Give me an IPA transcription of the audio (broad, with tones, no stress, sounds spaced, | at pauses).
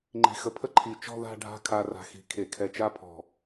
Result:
ŋ͡ǃ i̤˧˩ x ə˧ pʰ ə˥ ǃʰ i˧˩ t͡ʃ ɔ̤˥˧ ð a̤˥˧ ɖʱ a̤˥˧ kʰ a˧ r a̤˧˩ x i̤˧˩ kʰ e˧˩ kʰ ɛ˧ t͡ʃ a˥ pʰ ɔ̤˧˩